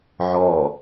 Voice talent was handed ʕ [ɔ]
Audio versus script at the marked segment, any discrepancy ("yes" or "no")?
no